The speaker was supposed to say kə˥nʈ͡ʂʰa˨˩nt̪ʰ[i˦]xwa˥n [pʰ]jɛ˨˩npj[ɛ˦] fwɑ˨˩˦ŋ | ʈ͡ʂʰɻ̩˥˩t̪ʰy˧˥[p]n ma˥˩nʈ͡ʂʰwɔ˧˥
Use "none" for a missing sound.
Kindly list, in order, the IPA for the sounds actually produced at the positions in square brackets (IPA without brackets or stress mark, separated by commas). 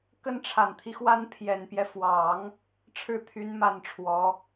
i˦, pʰ, ɛ˦, none